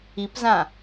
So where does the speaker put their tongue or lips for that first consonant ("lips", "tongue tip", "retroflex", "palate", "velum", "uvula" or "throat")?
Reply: lips